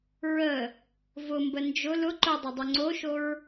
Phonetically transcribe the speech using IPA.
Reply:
ɹə | vʊmbə nd͡ʒʊ lʊ ǃʊdˤʊdˤʊ ŋ͡ǀoʃoɹ

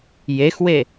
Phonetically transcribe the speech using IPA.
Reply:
jexwe

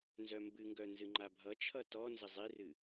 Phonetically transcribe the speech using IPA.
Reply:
nzœmbɨŋɡœ nzɨŋ͡ǃabʱʌt͡ʃʰʌ tɔ nzəzˤirɨ

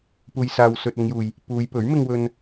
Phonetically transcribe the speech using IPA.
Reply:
puː˨jsaː˨wsɵ˨t̚ ʊ˨˧ŋjuː˨j | puː˨˧jpɵ˨˥ɥmɪ˧ŋ wɵ˨n

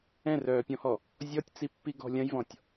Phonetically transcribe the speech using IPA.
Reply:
ɛ̃rœːpʲɔ̃hɔ | zʲɔtʲt͡sipːiɡɔ̤ lʲɐ̃jvɔ̃tʲ

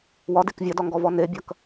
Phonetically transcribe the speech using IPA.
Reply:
wɒdek vʲɐdɒŋɡɔvɔ nebʲɐk

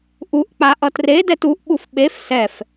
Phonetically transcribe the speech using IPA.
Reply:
ʔuʔk͡pa ʔʌtredɛt uʔɓuf ɓef sɛf

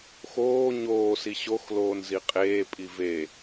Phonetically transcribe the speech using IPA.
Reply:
xoː ɲoːsi ɕox loːnziqʼeːpʼi ve

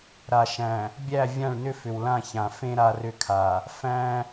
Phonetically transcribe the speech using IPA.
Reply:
ɾa˨ʃæ̃˨ | bʲæ˦˨ vʲã˦˨ɭnʏ˦ fʏ˨wlã˦˨çã˨ fẽ˦ ɾa˦rʏ˦kʰa˨ | fæ̃˦

